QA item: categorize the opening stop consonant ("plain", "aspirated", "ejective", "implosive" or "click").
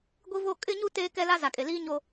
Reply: plain